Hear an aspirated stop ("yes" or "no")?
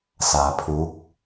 yes